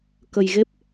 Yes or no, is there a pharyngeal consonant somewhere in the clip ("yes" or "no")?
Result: no